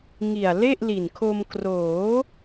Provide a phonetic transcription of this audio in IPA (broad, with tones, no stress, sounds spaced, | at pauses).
ŋ i˨˩ a̯ l e˥˩ ʔ l i˨˩ n kʰ o˧ m k r oː˩˦